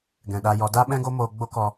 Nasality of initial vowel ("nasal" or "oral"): nasal